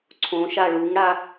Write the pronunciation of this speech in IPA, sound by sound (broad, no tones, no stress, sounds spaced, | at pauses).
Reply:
ǀʰ õ ʃ a ɭ u ŋ ɽ a